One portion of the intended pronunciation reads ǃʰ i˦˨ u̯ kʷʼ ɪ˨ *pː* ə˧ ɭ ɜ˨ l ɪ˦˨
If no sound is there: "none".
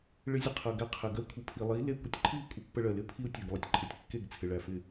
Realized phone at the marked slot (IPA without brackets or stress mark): pː